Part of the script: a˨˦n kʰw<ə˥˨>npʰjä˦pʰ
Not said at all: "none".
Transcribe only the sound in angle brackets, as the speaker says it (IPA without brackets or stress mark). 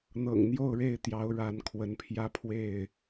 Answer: ə˨˦